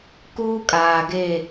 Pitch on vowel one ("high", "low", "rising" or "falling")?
high